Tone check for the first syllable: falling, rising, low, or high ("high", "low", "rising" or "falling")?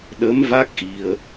rising